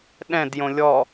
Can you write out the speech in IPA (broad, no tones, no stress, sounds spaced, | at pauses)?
ɗ ɛ̃ d j õ lʲ ɔ